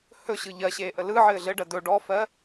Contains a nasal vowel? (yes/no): no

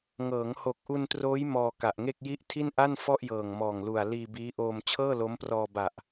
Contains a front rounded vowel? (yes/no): no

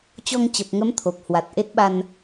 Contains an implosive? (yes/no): yes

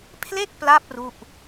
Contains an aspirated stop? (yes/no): yes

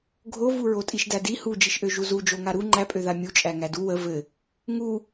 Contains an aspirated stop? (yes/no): no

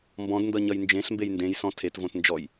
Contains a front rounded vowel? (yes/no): no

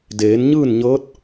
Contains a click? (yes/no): no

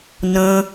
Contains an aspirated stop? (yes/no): no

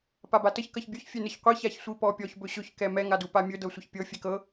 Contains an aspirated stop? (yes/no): no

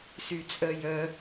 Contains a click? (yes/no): no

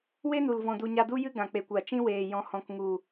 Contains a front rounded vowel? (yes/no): no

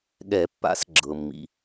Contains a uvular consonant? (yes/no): no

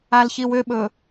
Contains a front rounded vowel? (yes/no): yes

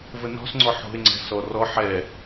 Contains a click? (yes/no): yes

